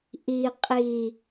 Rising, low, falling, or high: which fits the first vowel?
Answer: low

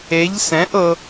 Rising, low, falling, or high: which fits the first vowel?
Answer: rising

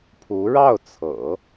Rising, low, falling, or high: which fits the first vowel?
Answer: rising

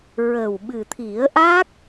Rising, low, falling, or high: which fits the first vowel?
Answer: low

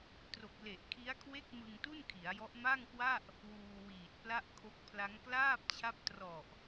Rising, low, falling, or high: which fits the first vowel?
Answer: low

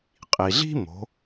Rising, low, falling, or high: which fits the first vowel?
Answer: low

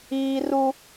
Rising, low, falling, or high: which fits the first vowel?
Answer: high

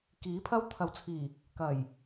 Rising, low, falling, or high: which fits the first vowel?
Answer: rising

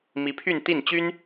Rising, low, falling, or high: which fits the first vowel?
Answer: rising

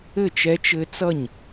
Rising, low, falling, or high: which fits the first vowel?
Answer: falling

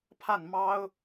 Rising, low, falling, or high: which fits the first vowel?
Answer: falling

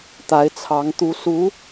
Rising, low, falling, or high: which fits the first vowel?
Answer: rising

